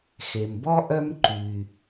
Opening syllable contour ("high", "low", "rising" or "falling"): low